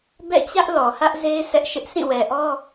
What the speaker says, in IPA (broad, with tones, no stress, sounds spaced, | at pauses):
b ɛ̰˦˨ t͡ɕ ä˦ ʔ l ɔ˨ h ä˦ ʔ z e˦ ɪ̯ s ɛ˦ ʔ ʃ ɪ˦ ʔ s ĩ˦˨ w ɛ˨ ʔ ɔ˦